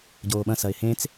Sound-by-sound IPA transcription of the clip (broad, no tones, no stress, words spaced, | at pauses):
ɟoːɓɐ̃sɐɪ̯ hẽt͡s